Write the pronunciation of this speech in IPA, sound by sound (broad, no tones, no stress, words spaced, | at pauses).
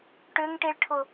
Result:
ʈʏŋʈiɭʈʰʊ